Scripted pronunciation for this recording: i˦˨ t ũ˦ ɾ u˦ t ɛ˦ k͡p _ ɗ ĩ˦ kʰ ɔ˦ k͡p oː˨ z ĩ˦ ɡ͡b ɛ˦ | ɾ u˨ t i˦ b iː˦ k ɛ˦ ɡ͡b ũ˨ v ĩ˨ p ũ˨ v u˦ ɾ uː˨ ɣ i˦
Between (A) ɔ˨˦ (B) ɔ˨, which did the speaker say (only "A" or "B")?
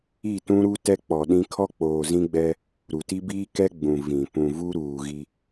B